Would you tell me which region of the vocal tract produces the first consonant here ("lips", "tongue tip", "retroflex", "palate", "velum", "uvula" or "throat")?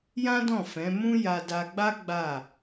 palate